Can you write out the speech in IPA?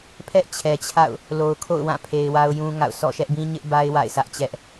pʰ ɛ˦ ʔ t͡ɕʰ ɛ˨ t͡ɕʰ a̰˦˨ ʊ̯ | l o˨ ʊ̯ kʰ o̰˦˨ ʊ̯ w ã˦˨ pʰ e˨ ɪ̯ w a˦ ʊ̯ j ũ˦ ŋ a̰˦˨ ʊ̯ s ɔ̰˦˨ ʃ ɛ˦ ʔ b ĩ˦ ɲ ɪ˦ ʔ b a˦ ɪ̯ w a̰˦˨ ɪ̯ sʰ ä˦ ʔ t͡ɕ ɛ˦ ʔ

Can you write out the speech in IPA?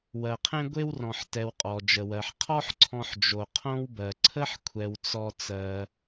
w ɜ˨ qʰ ẽ˥ ɡʷ e˥ w r ɔ̃˨ ħ t ɛ˨ w qʼ ɔ˩ d͡ʒ ə˩ w ɜ˩ ħ qʰ ɔ˥ ħ ǀʰ ɔ̃˨ ħ d͡ʒ o˩ qʰ õ˦ w b ɜ˩ ǀʰ ə˥ ħ kʷʰ ɛ˩ w t͡s ɔ˨ t͡s ɜ˩

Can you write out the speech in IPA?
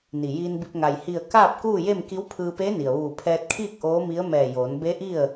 n i˩ j iː˧ n b i˧ p̚ ŋ a˩ j h i˧˩ ə̯ k aː˥˨ p̚ k uː˥˨ j e˥˨ m k i˧˥ w pʰ ɯː˧ p e˧˥ n i˩ ə̯ ʋ uː˧˩ pʰ ɛː˧ t̚ kʰ iː˥˨ k̚ ʔ oː˧˥ m i˧˥ ə̯ m ɛː˧˩ j oː˩˧ n b e˧˥ ʔ i˥˨ ə̯

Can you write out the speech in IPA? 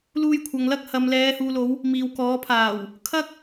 l uː˧ j kʷʰ ɐ˨ ŋ l ɐ˥ k̚ h ɐ˨ m l ɛː˨˧ h uː˨ l o˨˧ w | m iː˨ w k ɔː˨˥ pʰ aː˨˩ w | kʰ ɐ˥ k̚

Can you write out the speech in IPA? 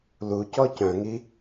l u c ɔ c œ̃ ŋ i

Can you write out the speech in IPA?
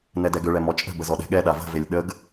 n ɛ d ɛ ɡ ʏ ɭ ɛ m ɔ t͡ʃʼ ə̤ b ə z ɔ ɗ ɛ̤ ɠ ɛ ɗ a v ə̤ v e lʲ ɗ ə ɡ

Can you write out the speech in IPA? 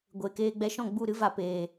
ɡʷ eː˨ k eː˧ ɡ͡b ɛ˧ ʃ ɔ̃˦˨ ɡ͡b u˦˨ ɾ ɨ˦ v a˧ p eː˨

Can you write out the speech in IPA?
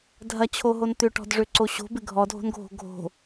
dʱ ɐ t͡ɕʰ o ɦ o n t̪ ʏ ʈ ɔ̤ d ʐ ø ǀ o ɕ o̤ b ɪ ɡʱ ɔ dʱ o̤ n ɡʱ o̤ ɡʱ o̤

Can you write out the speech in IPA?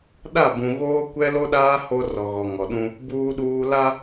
ɗ a˦˨ b ũ˨ ɣ oː˦ kʷ ɛ˦ l o˦ ɗ aː˦ h o˦ r ɔ˨ ɣ ɔ˨ ŋ ɔ˨ ɗ ũ˦ | b uː˦ ɗ uː˦ l a˦

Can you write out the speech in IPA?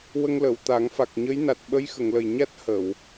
w ə˧ ŋ l ə˨˩˨ w t̪ a˨˩˦ ŋ f a˨˩ k̚ ɲ əː˧˥ j n a˨˩ t̚ ɓ ə˧˥ j x ə˨˩˨ ŋ l ə˨˩ j ɲ a˦˥ t̚ h ə˨˩˨ w

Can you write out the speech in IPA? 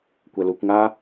kʷ ɛ l u kʷ ŋ a

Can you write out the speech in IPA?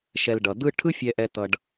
ʃ ɛ˨ l ɖ ʌ˩ d̪ ɯ˦ ʈʰ ɯ˦ fʲ ɛ˨ ʔ ɛ˨ t̪ ʌ˨ ɖ

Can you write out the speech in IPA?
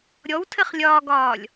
ɾʲ ɔ w tʰ ɘ χ lʲ ɒː ɡ ɒː lʲ

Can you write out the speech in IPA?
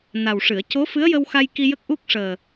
n a˨˩ w ʂ ɨ˨˩˨ ə̯ c o˧˥ f ɨ˧˥ ə̯ j ə˧ w x a˧ j k i˧ j ə˦˥ k̚ ʔ u˦˥ k̚ ʂ əː˨˩

